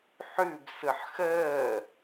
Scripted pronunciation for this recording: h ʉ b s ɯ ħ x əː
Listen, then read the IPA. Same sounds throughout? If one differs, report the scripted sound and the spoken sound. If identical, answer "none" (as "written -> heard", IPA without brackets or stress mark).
h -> ħ